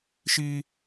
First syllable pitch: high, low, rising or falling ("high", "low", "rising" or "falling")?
high